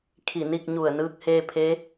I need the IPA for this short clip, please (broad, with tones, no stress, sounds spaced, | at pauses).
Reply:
kʰ i˧˩ n i˥˨ k̚ ɲ u˧˩ ə̯ n ɯː˧˥ k̚ h eː˧ pʰ e˧˥